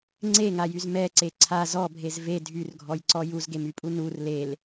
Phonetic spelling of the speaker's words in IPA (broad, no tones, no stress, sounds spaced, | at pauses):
ŋ͡ǀ e ŋ a j y z m ɛ ǀ e ǀʰ a z ɔ bʱ e z v e dʱ y r ɡʱ ɔ j ǀ ɔ j u z ɡ e m y pʼ u n u r l e l